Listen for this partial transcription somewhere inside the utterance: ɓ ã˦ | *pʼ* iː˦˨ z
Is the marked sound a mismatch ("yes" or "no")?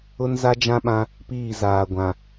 yes